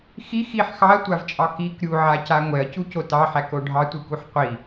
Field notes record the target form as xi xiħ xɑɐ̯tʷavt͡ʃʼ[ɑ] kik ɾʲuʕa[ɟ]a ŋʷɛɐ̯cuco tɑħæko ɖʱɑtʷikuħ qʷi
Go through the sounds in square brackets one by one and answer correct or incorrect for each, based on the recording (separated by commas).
correct, incorrect